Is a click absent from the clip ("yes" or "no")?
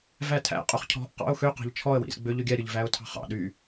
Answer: yes